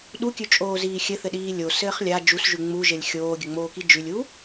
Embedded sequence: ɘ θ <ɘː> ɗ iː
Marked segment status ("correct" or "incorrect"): incorrect